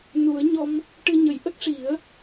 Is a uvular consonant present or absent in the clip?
absent